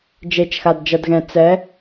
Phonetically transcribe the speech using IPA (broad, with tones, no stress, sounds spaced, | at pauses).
d͡ʒ e˧˥ t͡ʃ x a˧ d d͡ʒ ʌ˧ d ɣ ɛ̃˧ t͡s ɛ˧˥